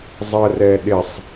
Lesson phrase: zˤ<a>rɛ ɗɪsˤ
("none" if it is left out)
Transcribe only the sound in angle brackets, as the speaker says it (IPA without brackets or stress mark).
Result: ə